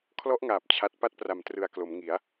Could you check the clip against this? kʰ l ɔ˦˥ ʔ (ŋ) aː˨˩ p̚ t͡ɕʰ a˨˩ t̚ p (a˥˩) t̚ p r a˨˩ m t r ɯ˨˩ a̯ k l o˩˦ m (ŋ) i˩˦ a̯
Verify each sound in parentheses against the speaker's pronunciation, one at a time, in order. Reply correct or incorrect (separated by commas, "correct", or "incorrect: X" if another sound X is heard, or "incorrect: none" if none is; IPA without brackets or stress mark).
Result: correct, correct, correct